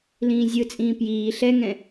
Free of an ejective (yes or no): no